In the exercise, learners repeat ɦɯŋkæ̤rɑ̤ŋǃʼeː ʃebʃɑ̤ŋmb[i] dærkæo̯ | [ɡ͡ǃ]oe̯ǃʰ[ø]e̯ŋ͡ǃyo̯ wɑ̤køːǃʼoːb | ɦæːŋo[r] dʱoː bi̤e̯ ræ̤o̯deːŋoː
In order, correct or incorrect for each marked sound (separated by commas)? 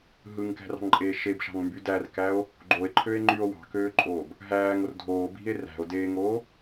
incorrect, correct, correct, correct